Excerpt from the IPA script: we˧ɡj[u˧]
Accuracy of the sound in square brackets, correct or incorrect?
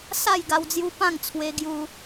correct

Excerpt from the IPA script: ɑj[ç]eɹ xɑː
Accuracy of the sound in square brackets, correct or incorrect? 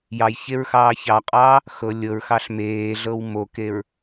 correct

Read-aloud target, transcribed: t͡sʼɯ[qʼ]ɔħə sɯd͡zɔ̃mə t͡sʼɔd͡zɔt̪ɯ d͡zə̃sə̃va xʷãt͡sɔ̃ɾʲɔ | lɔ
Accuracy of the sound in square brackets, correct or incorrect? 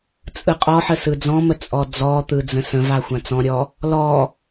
correct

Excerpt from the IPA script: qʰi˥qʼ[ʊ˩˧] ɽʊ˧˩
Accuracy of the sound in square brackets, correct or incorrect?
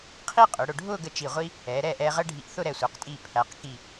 correct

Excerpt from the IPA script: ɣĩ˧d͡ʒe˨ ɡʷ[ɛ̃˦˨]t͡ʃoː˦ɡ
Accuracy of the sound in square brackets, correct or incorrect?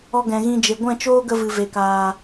correct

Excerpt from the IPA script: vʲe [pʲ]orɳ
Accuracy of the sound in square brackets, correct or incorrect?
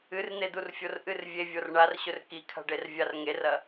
incorrect: vʲ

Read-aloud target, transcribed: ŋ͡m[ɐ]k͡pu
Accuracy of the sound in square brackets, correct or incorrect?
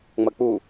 correct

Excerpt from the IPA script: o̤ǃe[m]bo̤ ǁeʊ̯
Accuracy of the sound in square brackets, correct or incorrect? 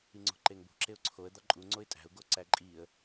incorrect: ŋ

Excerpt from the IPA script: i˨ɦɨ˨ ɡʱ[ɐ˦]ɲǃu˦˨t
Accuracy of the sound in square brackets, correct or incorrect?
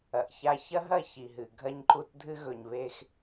correct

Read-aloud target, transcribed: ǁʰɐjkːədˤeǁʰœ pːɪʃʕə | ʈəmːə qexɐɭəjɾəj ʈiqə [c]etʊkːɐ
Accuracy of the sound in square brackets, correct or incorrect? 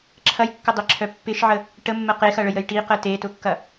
incorrect: t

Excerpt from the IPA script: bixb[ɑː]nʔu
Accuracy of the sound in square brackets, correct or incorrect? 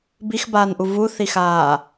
incorrect: aː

